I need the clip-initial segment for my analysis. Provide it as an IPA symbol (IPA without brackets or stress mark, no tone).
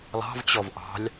lˠ